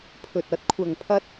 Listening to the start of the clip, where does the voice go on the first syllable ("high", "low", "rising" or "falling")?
low